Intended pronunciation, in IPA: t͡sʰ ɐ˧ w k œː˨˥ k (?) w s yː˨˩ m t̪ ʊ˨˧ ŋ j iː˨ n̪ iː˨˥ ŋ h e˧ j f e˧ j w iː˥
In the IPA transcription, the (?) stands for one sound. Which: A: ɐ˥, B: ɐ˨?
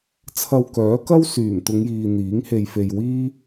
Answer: A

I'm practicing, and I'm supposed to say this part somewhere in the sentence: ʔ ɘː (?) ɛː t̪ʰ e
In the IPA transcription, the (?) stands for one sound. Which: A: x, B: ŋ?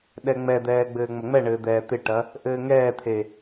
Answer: B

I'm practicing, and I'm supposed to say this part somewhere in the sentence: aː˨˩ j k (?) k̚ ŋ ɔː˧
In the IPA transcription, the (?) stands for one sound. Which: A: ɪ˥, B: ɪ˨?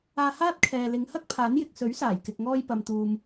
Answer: B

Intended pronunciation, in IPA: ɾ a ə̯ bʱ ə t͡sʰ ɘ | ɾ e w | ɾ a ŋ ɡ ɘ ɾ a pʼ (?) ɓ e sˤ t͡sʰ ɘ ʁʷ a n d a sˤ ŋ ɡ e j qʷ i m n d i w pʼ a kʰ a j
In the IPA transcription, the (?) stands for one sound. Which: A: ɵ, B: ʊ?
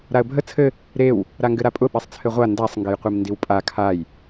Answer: B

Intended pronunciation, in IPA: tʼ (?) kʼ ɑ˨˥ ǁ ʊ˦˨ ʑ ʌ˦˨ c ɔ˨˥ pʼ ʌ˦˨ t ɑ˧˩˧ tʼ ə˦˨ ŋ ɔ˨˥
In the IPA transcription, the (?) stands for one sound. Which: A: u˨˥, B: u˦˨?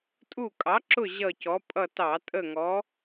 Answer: B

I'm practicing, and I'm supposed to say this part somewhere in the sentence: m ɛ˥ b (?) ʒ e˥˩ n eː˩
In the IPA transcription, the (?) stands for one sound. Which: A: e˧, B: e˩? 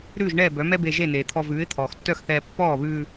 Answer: A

